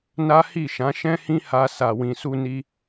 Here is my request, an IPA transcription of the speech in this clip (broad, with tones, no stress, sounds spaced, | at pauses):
n a˦ h i˦˨ ʃ ã˨˦ ʃ ɛ̃˦ h ĩ˦ h a˧ s a˨ w ĩ˨ s u˧ n i˧